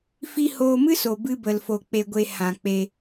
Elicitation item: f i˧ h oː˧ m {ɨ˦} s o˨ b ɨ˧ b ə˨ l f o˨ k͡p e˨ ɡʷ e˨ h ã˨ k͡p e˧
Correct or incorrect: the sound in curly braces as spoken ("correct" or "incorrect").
correct